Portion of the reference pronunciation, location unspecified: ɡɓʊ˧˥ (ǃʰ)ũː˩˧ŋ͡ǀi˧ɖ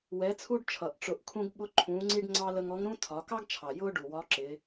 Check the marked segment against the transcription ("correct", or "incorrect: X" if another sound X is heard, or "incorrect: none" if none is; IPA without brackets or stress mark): correct